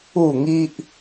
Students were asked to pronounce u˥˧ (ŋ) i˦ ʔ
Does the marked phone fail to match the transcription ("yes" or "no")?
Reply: no